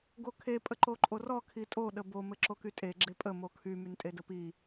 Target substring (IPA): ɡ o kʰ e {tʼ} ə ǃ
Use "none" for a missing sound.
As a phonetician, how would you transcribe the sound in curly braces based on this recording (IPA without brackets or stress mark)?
pʼ